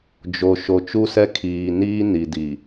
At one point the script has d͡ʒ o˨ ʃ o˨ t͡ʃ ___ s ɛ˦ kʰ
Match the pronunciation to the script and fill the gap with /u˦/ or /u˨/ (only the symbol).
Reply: u˦